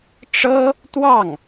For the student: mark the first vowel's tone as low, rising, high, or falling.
high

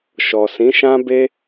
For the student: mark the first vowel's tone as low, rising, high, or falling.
low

